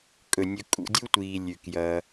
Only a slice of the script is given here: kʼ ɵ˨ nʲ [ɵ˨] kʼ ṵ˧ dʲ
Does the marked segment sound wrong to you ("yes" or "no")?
yes